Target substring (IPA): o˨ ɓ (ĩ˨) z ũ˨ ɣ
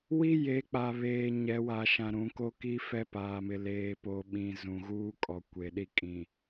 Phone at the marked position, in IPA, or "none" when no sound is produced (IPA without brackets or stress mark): ĩ˨